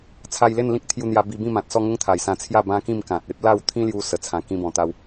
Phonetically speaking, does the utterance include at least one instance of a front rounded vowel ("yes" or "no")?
no